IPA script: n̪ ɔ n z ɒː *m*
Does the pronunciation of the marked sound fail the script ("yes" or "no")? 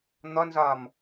no